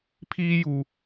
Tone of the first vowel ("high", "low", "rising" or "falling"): high